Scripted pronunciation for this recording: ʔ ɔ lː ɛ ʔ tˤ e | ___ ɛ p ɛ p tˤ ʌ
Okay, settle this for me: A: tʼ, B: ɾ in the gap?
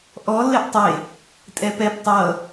A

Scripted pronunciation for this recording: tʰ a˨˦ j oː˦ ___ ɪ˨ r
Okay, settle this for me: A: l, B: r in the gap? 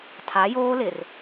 A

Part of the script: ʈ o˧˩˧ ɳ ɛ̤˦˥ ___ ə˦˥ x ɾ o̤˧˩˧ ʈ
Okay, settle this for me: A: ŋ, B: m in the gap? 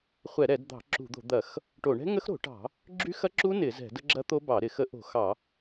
A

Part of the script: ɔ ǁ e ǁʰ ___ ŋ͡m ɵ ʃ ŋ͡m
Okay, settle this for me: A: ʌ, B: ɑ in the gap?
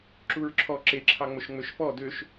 B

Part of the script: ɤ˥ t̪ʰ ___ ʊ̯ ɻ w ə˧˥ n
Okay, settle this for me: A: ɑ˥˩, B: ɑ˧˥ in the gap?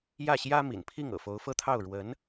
A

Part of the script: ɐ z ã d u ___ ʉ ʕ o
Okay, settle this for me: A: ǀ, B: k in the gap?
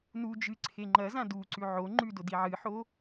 A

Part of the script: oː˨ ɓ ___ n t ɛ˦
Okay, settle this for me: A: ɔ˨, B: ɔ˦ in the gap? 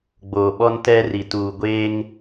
B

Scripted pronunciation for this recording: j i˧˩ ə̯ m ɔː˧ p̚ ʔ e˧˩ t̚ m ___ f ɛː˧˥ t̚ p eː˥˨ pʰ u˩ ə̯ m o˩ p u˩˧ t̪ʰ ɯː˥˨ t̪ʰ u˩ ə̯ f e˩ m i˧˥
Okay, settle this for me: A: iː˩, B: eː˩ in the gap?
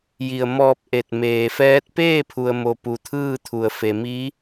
B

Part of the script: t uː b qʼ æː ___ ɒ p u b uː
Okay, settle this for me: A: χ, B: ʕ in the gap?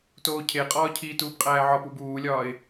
B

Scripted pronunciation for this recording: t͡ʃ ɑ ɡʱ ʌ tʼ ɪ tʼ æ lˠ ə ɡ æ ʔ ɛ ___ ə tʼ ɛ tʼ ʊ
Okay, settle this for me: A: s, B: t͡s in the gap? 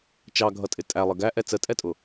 B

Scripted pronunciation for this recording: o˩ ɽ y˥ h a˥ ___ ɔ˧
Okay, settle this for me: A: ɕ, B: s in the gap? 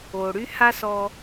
B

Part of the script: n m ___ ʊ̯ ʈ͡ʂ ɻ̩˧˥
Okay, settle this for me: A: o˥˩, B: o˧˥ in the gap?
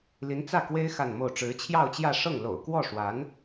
A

